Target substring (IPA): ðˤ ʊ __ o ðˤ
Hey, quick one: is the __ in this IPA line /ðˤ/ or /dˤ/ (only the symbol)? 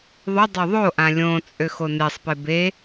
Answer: dˤ